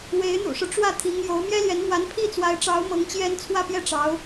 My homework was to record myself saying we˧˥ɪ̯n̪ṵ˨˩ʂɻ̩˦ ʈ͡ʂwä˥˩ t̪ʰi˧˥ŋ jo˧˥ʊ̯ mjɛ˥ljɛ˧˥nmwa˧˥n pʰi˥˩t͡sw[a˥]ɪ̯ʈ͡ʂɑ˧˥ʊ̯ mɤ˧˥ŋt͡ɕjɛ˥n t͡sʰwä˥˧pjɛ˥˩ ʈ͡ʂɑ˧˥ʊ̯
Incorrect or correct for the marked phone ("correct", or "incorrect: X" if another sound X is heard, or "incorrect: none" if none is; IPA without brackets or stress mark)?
incorrect: a˧˥